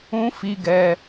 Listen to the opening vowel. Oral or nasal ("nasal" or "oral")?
nasal